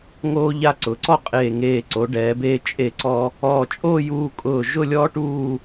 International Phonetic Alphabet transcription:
ŋoː˧ ʎa˧ ǀʊ˩˧ǀɔ˥˧qʼeː˧˩ŋeː˧˩ ǀo˩˧ɖɛː˩˧beː˧ t͡ʃʼe˧˩ǀɔ˧ | ɔː˧˩t͡ʃʼoː˥˧ juː˧kʼʊː˧˩ ʒʊ˥˧lʲɔː˥ʈuː˥˧

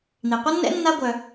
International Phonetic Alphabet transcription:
n̪i˩qʷʌ˥nːɛ̰˥ nːa˥ ɡʷœ˩

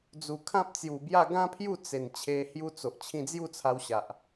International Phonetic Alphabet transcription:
d͡zu˨˩kʰã˦p̚t͡sju˨˩bja˥˧ ɡã˦ pʰju˥˧t͡se˨˩n t͡ɕʰe˧hju˦t͡so˨ʔ t͡ɕʰĩ˧d͡zju˥˧t͡sʰa˧wɕa˨ʔ

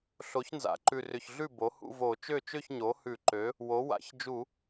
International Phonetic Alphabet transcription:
ɬo˩˥çnza̰˩˥ǃʉ˨˩ rʏ˨˩çɮʉ˥˩ bo˩˥hṵ˥˧vo˧˩˧ t͡ʃø˥˩t͡ʃø˥˧çɲo˩˥ hʉ˧˩˧ǃø˩˥ | wo˩˥ wa̰˧˩˧ç d͡ʒu˧˩˧

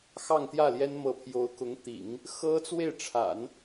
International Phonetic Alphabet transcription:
xɑ˥˧ŋt̪jä˥˩ljɛ˥n mɤ˧˥pʰjo˧˥ʊ̯kʊ˧˥ŋt̪ḭ˨˩˦ŋ | xɤ˥t͡swe˥˩ɪ̯ʈ͡ʂʰa̰˨˩˦n

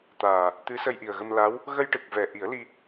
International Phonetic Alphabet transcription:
t̪aː˨˩ | t̪ɨ˧˥sə˧jʔi˨˩ə̯ɣə˧m la˧˥w | ɣə˧jʈɨ˨˩k̚vɛ˨˩ ʔi˨˩˦ə̯li˧

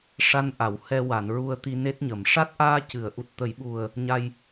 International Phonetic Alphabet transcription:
ʂa˧nʔa˨˩˨w hɛ˧wa˨˩˨nɹu˧ə̯ t̪i˧ne˦˥t̚ɲə˨˩˨m ʂa˦˥t̚ʔaː˧ cɨ˨˩˨ə̯ʔu˨˩t̚ t̪ə˨˩˦jɓu˨˩ə̯ | ɲa˧j

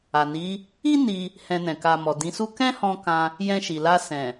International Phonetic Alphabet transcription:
a˨ni˨˦ | i˦ ni˧ | hɛ̃˧nɛ̃˨ ka˨ mɔ˨dĩ˨˦su˦ kɛ̃˦hɔ̃˧ kã˧ | jɛ̃˧ʃi˨la˧ sɛ̃˨

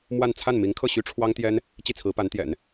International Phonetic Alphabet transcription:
mwa˥˧n t͡sʰa˥˩nmi˧˥ŋkʰɤ˥˩ ɕy˥ʈ͡ʂʰwɑ˥ŋt̪jɛ˥n | t͡ɕi˥˩t͡sʰɹ̩˧˥pa˧˥nt̪jɛ̰˨˩˦n

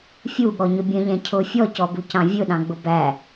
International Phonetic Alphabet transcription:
fʲuɠɔɲʊ bʲə̃ʎɛ̃ cʰʊ fʲɔcɔbucɑ̃ vʲʊɗɑ̃ɡ͡bʊ bæ

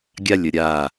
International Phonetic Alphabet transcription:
ɡʲalʲə ɾʲa

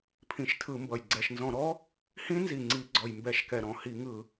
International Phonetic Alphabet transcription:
pʰĩ˧˩˧ʃtʰɯ˧˩˧mbʌ˨˩j ɡ͡ǀɛ˨˩ʃnzɔ̃˧˩˧ɾɔ˦˥ | hĩ˦˥nzi˨˩ŋ͡ǀi˧˩˧ ɡ͡ǀɔ˨˩jmbɛ˧˩˧ʃkɛ˨˩ ɾɔ̃˨˩hi˧˩˧ ŋɯ˧˩˧

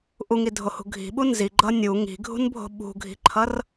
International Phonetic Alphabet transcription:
ʔuŋidʱohṳ ɡʱi̤ɓu nziɡ͡ǃʌ nʲu ŋi̤ɡʱṳnbʱo̤ ɓṳɡʱi̤ǃʰʌr

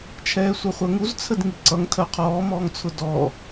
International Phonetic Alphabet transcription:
t͡ʃʰɛːsʷʌχʷɜŋuz t͡sʰədŋiǀʌŋ tʰɜqʰɔː mɔːŋt͡sʰʊdɔː

